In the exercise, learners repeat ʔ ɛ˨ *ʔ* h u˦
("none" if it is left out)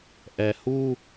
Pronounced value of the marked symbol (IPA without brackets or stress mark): none